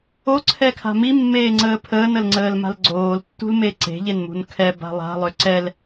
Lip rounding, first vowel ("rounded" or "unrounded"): rounded